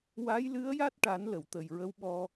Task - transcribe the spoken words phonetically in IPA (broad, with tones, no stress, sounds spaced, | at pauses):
w a˧˥ j l ɨ˧˥ ə̯ j a˦˥ t̚ ʈ a˨˩˦ n l ə˨˩˨ w t̪ ə˨˩ j ɹ ə˧˥ w ɓ ɔ˧